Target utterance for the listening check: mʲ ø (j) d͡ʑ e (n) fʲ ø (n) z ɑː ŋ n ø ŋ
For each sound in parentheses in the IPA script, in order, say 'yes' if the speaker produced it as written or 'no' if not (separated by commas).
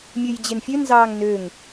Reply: yes, yes, yes